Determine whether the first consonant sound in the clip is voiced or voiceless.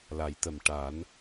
voiced